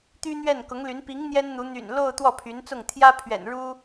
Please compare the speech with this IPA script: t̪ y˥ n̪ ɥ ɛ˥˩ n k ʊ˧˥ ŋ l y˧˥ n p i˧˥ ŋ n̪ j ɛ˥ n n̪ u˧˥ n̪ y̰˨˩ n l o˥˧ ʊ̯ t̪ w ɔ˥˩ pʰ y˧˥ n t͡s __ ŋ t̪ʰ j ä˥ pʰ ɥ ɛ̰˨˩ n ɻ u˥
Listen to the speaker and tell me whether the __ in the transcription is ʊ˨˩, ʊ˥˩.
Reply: ʊ˥˩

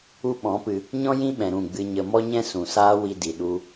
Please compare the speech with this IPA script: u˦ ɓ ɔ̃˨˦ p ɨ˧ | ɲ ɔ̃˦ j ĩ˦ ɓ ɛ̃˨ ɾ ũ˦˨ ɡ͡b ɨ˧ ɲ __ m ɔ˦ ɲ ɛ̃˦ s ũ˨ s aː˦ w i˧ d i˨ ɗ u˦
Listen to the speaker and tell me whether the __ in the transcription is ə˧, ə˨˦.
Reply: ə˧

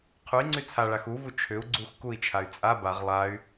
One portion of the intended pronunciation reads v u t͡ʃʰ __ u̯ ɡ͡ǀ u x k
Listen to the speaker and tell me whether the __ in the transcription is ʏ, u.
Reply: ʏ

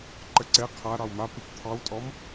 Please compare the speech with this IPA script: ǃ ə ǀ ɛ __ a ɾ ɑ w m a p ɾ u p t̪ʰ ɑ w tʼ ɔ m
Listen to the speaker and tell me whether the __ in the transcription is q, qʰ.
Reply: qʰ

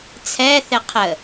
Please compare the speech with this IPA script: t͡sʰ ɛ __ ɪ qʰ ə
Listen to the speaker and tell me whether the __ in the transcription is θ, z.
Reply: θ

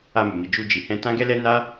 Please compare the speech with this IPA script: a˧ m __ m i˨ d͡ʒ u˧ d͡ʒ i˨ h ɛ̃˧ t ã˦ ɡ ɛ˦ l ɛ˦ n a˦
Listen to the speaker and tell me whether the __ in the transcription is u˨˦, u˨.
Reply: u˨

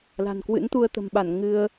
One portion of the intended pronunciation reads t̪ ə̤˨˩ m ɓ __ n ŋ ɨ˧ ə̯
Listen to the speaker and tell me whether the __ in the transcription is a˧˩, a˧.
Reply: a˧˩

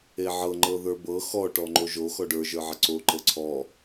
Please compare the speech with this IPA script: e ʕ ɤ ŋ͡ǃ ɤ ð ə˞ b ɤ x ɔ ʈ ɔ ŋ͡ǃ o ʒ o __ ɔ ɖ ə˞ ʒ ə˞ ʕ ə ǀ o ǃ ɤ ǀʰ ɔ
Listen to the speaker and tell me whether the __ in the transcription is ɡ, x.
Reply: x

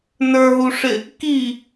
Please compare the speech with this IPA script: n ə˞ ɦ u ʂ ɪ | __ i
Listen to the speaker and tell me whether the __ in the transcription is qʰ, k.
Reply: k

